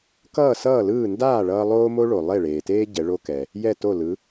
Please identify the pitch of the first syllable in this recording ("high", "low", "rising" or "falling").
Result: falling